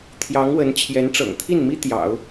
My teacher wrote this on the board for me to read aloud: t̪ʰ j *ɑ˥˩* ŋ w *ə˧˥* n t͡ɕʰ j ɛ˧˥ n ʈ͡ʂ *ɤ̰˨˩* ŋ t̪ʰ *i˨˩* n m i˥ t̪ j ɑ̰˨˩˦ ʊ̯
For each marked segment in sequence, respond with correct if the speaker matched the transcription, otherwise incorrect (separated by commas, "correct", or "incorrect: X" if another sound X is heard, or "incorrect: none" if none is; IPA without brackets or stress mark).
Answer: incorrect: ɑ˧˥, correct, correct, incorrect: i˥˩